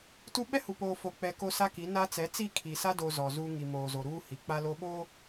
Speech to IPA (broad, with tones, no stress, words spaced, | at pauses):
tu˦ ɓɛ˦hu˨poː˨ fo˨ k͡pɛ˨ ko˦sa˦ki˨˦na˦ t͡sɛ˨˦t͡si˦˨kʰi˨ sa˦ do˨ zɔ˨zuː˦ ŋi˨moː˨zo˨ ɾuː˦hi˨ k͡pa˦lo˦ ɓoː˦